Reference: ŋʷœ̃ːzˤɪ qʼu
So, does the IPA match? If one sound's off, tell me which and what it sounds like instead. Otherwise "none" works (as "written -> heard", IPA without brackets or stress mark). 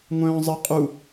none